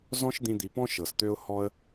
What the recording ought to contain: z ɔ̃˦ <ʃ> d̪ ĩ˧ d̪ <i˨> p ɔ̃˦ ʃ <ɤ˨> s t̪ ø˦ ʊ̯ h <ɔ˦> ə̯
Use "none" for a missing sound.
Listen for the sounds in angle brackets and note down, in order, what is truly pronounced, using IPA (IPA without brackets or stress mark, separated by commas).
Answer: ʃ, i˨, ɤ˨, ɔ˦